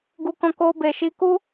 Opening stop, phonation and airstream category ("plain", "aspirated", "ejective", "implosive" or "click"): plain